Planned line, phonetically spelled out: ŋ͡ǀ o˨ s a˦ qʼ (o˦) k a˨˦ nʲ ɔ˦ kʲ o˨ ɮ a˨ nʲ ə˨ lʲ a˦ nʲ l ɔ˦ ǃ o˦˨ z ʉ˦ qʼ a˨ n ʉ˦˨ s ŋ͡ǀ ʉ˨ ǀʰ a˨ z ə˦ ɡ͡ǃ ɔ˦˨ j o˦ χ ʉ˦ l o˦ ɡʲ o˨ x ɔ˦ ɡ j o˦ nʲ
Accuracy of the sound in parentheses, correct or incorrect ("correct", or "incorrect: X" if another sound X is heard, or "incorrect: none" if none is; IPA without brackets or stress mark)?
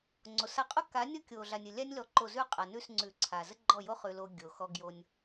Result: correct